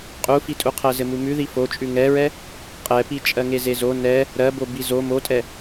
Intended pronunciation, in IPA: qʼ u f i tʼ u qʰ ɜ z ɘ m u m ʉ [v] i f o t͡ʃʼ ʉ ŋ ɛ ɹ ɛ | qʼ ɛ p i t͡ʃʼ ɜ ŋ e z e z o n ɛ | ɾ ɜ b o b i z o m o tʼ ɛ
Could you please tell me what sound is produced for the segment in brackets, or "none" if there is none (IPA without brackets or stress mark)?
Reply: ð